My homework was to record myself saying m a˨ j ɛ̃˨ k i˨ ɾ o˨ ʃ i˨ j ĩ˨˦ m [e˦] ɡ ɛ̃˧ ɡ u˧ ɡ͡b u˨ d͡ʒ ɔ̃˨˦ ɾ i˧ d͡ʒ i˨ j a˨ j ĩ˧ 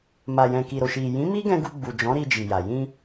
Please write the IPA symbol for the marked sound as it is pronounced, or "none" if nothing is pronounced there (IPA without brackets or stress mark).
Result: i˦